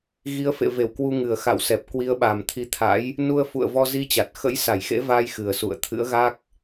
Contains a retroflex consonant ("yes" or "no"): no